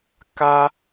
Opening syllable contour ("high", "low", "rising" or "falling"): high